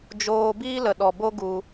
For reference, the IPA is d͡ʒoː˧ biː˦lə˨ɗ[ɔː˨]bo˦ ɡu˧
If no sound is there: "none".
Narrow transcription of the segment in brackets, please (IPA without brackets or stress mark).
ɔ˨